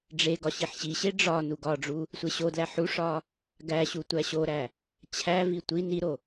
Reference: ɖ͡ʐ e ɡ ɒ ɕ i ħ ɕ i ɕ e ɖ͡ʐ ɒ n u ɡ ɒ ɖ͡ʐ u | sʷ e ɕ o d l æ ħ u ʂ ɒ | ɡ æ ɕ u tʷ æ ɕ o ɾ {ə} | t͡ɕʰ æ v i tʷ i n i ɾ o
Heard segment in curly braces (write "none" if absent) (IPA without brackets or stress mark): æ